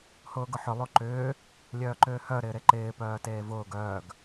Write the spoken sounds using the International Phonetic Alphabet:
h ʊː ɡ ʊ ħ ʏ lˠ o ǃ ʏː | lʲ œː ǃ ʏː h œ ɾ ɪː ɾ e ǃ ɪː p œː t eː v ʊː ɡ œː ɡ

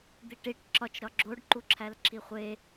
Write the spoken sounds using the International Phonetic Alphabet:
d̪ i ʈ i ʈ ǁ ɒ t͡ʃ ɾ ɒ ɡ͡ǁ o ɖ ǃ u ǁʰ æ l ǁʰ i χʷ e

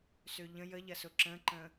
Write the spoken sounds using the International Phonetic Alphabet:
s ø ʎ ə̃ j ə ʎ ɐ s ʊ ǁ ə̃ ǃ ə̃

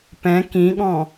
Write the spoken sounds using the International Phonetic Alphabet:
p ɛ̃ k ĩ ɠ ɔ̃

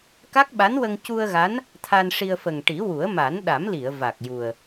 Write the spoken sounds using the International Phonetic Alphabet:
k a˦˥ k̚ ɓ a˧˥ n w ə˧ ŋ c u˧ ə̯ ɣ a˧˥ n | t̪ʰ a˧ n ʂ i˧ ə̯ f ə˨˩ ŋ ʈ i˨˩˦ w u˨˩˦ ə̯ m a˨˩˦ n ɗ a˨˩˦ m l i˨˩˨ ə̯ v a˨˩ k̚ j u˨˩ ə̯

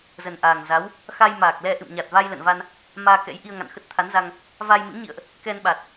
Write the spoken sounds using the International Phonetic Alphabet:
z ə˨˩ n ʔ aː˨˩ ŋ z a˨˦ w | x a˧ j m aː˨˩ k̚ l ɛ˧ ʔ ɨ̰˧˨ m ɲ a˨˩ t̚ v a˧ j l ə̰˧˨ n v a˧ n | m aː˧ k ɛ̰˧˥ j ʔ i˧ ə̯ ŋ a̰˧˨ n x ə˦˥ t̚ t̪ʰ a˨˦ n z a˧ ŋ | v a˧ j m ɨ̰˧˥ ŋ ɲ ḭ˧˨ ə̯ ʔ | k ɛ˧ n ɓ a˨˩ t̚

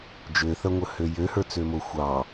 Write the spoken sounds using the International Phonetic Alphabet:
d͡ʒ ø θ ɐ ŋʷ ə h ø j ø h ə˞ t͡s ø m o xʷ ɑ

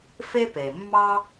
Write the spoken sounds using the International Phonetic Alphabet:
f e˥ p e˩ mː ɑ˥

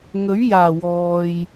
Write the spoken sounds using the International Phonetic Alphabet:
ŋ ɵ˨˥ ɥ j aː˨˩ w ɔː˨ j

